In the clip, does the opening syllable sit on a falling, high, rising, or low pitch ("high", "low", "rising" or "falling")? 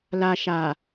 high